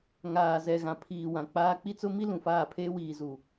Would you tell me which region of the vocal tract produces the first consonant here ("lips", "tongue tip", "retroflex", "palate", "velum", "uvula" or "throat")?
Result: velum